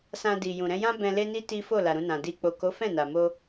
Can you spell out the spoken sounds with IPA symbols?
s ã˧ d i˨ j ũ˨ ɾ ɛ̃˧ j ã˦ b ɛ̃˧ l e˦ n i˦ t i˦ f o˦˨ l a˨ ɾ ũ˧ n ã˨ d i˧ k͡p o˨ k o˨˦ f ɛ̃˦˨ n a˨ m o˧

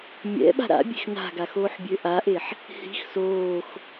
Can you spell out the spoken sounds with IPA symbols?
mʲ ɛ̰ ɓ a̤ ɾ a̰ bʲ e̤ x n a̤ ɡ a x oː ħ bʲ ø ʔ a ʔ e ħ | h i̤ x s oː x

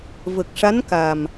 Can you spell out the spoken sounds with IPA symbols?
v ə˨˩ k̚ ʂ a˧˥ n k a˨˩ m

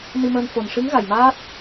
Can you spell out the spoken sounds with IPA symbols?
n i˧ m əː˧ n f o˨˩ n ʂ ɨ˧˥ ŋ ɣ a˨˩ j m aː˦˥ t̚

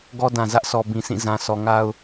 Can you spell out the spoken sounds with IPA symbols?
ɡ ɔ˦ d ã˨ z ä˦ ʔ sʰ ɔ˨ b ĩ˨ s ĩ˦˨ z ã˨ s ɔ˨ ŋ a˦ ʊ̯

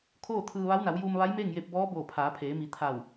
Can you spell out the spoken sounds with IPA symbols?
kʰ oː˥˨ t̪ʰ ɯː˧ ʋ a˧˥ w n a˩˧ w j uː˧ m ʋ a˧˥ j m eː˥˨ ŋ j e˧ p̚ b ɔː˧˥ b oː˧˩ pʰ aː˩˧ pʰ eː˩˧ m i˩˧ t̪ʰ a˧˩ w

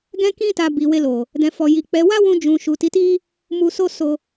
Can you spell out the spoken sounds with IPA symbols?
ɡ ɛ̃˦ k ĩ˦ t a˧ b i˨ w e˧ l o˨ | d ɛ̃˨ f ɔ˨ j i˨ k͡p ɛ˨˦ w a˦ w ũ˧ d͡ʒ ũ˨ ʃ u˨ t i˨˦ t i˦ | m u˧ s o˦ s o˧

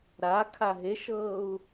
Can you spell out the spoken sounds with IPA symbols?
ɾ a kʰ a ɦ e ʃ ɤː u̯

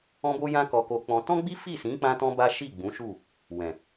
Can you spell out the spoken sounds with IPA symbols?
ɔ̃˦ b o˦ j ã˦ k ɔ˧ k o˧ k͡p ɔ̃˧ t ɔ̃˦ ɡ͡b i˦ f i˦˨ s ĩ˨˦ k͡p ã˦ t ɔ̃˦ b a˦ ʃ i˦˨ ɡ͡b ũ˨˦ ʃ u˦˨ | w ɛ̃˨

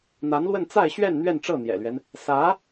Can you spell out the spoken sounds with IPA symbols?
n̪ a˧˥ n l w ə˥˧ n t͡s a˥˧ ɪ̯ ɕ ɥ ɛ˥˧ n n̪ ɥ ɛ˥˧ n ʈ͡ʂ ɤ˥˩ n̪ j ɛ̰˨˩ l ɥ ɛ˦ n | s ä˧˥

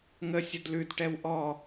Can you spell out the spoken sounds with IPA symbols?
ŋ ə sʲ ə d l ʉ d ʈ ɛ w ʔ ɔ

